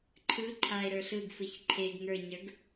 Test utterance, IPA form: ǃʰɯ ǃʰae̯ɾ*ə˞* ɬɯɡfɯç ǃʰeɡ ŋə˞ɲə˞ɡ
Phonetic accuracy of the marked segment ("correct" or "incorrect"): correct